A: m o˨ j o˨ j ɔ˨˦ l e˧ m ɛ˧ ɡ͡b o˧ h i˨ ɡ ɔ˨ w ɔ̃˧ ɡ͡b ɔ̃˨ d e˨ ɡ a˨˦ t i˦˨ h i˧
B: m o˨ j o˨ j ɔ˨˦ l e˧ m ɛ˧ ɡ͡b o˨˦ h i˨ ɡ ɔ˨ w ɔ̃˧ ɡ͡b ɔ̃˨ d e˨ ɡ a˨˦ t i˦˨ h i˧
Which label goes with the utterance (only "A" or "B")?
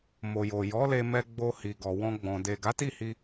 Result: A